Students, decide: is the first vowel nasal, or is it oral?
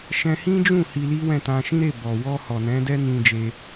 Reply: nasal